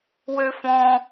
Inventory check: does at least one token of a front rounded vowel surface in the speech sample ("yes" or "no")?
yes